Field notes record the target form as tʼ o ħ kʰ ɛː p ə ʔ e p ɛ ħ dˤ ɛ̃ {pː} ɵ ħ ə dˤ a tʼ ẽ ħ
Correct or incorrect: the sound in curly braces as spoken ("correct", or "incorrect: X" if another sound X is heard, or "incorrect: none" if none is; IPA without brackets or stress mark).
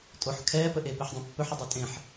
correct